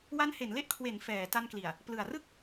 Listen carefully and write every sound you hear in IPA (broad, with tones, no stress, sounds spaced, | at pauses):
w a˦˥ n h e˩˦ n l e˥˩ ʔ kʰ w e˩˦ n f ɛː˩˦ t a˧ n k l i˨˩ a̯ | p l ɯ˨˩ a̯ r ɯ˥˩ k̚